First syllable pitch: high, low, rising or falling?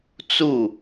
falling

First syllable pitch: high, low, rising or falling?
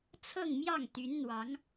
falling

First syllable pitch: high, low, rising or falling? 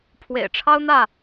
low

